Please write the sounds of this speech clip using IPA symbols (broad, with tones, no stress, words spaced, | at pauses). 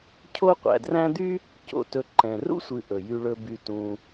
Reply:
cʰo˦ qʷæ̰˨dræ̃˥ d̪y˥ | co̰˨ tɵ˨ǃɛ̃˩rṵ˥ sʷɨ˨ʔɵ˩ jy˨ɭɵ˨ by˨tũ˨